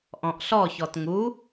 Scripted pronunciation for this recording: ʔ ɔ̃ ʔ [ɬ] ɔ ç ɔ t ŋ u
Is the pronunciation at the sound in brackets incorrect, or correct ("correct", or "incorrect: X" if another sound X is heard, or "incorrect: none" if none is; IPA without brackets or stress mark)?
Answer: correct